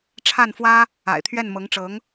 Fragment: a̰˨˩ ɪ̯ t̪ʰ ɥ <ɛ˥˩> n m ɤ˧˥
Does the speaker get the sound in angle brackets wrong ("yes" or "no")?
no